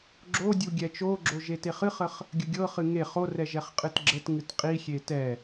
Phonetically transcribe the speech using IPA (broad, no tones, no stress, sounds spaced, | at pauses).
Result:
ɡ͡ǁ o dʲ u ɡʲ ɛ t͡ʃ o ɡ͡ǁ o ʒ e t e χ ɨ χ ə χ | ɡʲ ə ɡʲ ɤ χ ɨ ŋ e χ o r ɛ ʒ ɛ χ qʼ ɨ t ɡ͡ǁ ə t ŋ ɨ t qʼ i xʲ e t ɛ